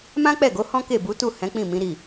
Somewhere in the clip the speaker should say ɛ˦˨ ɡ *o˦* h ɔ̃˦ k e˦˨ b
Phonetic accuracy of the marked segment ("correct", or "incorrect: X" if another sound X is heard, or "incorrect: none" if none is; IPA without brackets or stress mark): incorrect: o˨˦